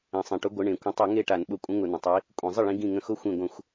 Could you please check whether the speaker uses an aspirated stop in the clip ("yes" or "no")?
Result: no